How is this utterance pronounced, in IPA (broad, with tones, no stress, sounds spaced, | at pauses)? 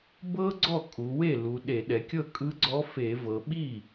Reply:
b ɤ˥ ɡ͡ǀ ɔ˥˩ kʼ u˩˧ w e˥˩ l u˩˧ ɗ e˧˩˧ ɗ ɛ˩˧ kʲ ɤ˥˩ kʼ ɯ˧˥ ɡ͡ǀ ɔ˧˥ f e˧˩˧ v ɤ˩˧ ɓ i˥˩